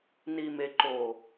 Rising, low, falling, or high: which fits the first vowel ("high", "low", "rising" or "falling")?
low